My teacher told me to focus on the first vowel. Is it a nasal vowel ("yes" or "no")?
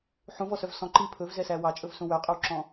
yes